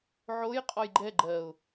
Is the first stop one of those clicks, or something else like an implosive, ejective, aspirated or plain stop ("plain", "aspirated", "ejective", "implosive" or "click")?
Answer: ejective